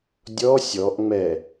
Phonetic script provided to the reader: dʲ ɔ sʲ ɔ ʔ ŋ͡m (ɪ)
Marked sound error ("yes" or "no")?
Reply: yes